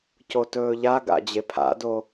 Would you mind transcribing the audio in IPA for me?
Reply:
c o t ɵː ʎ a ɡ a̰ d͡ʑ e pʰ a̰ d o

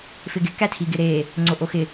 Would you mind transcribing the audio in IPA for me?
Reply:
f ɪ ɡ ɪ k æ tʰ i ɡ ɪ ɾ e | ŋ͡ǀ o ʔ o x ɪ

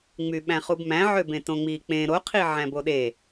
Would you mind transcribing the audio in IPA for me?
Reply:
ŋ͡m y ɓ æ̃ χ u b m æ̃ ʕ ø b ẽ t õ ŋ͡m i k͡p ẽ ɾ o qʰ i ʕ æ̃ b o ɗ e

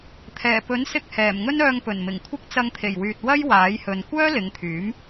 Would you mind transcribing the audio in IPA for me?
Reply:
t̪ʰ ɛː˨˩ p ɵ˨˥ n s ɪ˧ k̚ h ɛː˨˩ m ŋ ɵ˥ n œː˧ ŋ p ɵ˨˩ n m ɪ˨˩ ŋ kʷʰ ɪ˥ k̚ t͡s ɐ˧ ŋ t̪ʰ e˨˩ j w yː˨ t̚ w ɐ˥ j w aː˨˥ j h ɵ˨ n kʷ œː˥ l ɪ˨˧ ŋ t̪ʰ yː˨˥ m

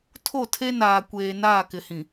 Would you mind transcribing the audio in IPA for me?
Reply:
tʰ o˦˨ tʰ e˦ n aː˨ kʷ eː˨ n aː˦˨ k ɪ˨ h ĩ˨

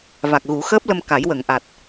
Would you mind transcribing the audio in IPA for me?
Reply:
v a˨˩ k̚ ɣ u˨˩˦ x əː˦˥ p̚ l ə˧ m k a˨˩˦ j w ə˨˩˨ ŋ ʔ a˨˩ t̚

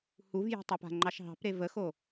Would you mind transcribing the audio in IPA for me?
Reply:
h u v j e̤ tˤ e p a̤ ŋ͡ǃ ɑ ʃ ɦ ɑ̤ p ɾ e v ə x o

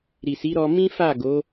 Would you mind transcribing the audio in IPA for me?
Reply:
ɾ i˨ s i˨˦ ɾ ɔ˧ m ĩ˦ f a˦˨ ɡ o˨˦

